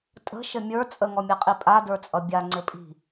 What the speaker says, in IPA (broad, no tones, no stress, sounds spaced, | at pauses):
tʼ ə̤ ʃ ɘ mʲ ə˞ t͡sʼ ə ŋ ɔ mʲ a qʼ i pʼ a d ə˞ t͡sʼ ʌ bʲ a ŋ͡ǀ ɘ pʼ i̤